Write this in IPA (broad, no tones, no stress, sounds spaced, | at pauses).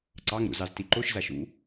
ǀ ɑ ŋ ɾ ṵ z ɑ z t i ǃ o ʃ z a ʃ ṵ